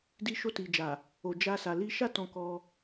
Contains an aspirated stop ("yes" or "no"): no